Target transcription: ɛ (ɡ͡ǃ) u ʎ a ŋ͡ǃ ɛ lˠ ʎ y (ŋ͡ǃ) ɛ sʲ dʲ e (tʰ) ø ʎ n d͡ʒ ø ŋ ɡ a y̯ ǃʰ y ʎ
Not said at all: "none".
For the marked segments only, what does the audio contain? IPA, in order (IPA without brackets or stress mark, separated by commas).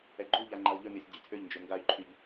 ɡ͡ǃ, ŋ, tʰ